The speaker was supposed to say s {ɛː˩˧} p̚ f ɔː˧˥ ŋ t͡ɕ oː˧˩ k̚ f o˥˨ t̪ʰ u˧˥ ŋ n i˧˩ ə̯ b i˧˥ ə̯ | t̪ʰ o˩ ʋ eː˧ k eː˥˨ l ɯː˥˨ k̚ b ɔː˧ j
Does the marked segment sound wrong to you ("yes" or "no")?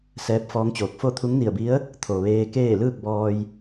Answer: yes